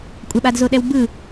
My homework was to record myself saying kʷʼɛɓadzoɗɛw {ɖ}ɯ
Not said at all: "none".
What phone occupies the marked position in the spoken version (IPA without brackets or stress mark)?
b